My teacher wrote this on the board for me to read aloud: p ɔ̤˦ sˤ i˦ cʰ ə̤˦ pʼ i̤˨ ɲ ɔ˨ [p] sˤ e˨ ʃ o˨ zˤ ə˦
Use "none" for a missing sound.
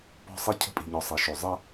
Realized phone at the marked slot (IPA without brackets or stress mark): none